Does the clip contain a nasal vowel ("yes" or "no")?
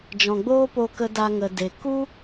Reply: yes